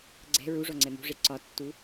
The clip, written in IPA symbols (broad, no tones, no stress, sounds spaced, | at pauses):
ɡ͡ǀ ɛ̤ ɹ u ʐ ɔ ŋ͡ǀ ɛ m ṳ ʐ e ǀ ɒ tː u